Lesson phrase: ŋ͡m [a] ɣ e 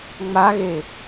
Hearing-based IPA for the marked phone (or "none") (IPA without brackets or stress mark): a